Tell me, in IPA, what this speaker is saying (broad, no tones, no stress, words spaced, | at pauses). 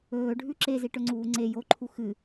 ɵːɖʱʉ ǁeziʈɵŋ͡ǀuː ŋ͡ǀe joǃʰu xɨ